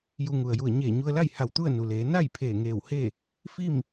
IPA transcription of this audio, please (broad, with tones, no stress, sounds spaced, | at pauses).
j u˧ ŋ u˩ ə̯ j u˧˩ ə̯ ɲ eː˧˩ ɲ u˧ ə̯ l a˥˨ j h a˧˩ w t̪ u˥˨ ə̯ n u˩ l eː˩˧ n a˥˨ j pʰ eː˧˩ ŋ eː˧˩ w h e˥˨ | f i˥˨ m